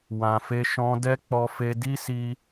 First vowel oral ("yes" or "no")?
no